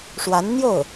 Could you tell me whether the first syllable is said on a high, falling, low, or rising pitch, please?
rising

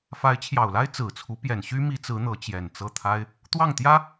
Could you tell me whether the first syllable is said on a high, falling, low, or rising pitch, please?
rising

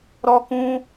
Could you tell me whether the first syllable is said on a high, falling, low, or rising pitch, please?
high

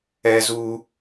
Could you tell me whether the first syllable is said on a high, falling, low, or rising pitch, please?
high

